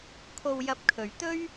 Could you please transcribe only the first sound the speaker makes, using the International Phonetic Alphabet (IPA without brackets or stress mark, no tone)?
kʰ